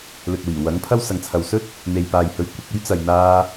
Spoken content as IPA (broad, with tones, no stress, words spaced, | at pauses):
lɵ˨t̚wiː˨˩ wɐ˨˥ŋpʰɐ˥w sɐ˨˧ŋt͡sʰɐ˨w sɵ˥t̚ | n̪e˨jpaː˨jhɵ˨˥ɥ kʷɪ˨k̚ ɵ˥ɥt͡sɐ˨j n̪aː˧